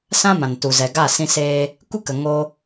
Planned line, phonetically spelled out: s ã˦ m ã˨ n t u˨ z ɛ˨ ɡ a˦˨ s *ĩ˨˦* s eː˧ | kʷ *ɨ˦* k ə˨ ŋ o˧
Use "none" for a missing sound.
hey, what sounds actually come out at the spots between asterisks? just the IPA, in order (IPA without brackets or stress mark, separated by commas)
ĩ˧, ɨ˦